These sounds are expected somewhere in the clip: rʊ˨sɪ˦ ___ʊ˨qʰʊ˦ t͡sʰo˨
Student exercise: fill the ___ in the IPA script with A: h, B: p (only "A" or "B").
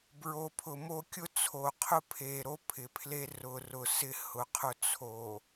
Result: A